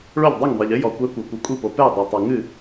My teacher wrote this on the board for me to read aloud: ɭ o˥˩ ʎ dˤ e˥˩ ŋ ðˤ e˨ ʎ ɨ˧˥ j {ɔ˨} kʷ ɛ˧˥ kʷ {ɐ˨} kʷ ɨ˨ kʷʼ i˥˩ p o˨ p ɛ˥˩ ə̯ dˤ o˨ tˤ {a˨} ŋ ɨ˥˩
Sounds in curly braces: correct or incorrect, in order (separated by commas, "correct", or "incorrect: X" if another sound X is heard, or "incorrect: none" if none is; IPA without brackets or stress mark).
correct, correct, correct